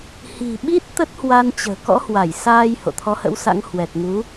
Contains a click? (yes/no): no